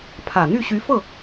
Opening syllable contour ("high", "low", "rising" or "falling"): low